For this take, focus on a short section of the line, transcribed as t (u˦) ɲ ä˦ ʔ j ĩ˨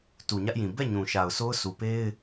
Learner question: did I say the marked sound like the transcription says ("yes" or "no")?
no